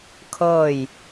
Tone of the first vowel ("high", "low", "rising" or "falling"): falling